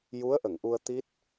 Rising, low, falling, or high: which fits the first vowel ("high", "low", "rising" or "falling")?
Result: rising